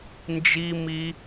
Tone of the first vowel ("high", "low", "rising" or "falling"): high